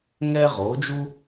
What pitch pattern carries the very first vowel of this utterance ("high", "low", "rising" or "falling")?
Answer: high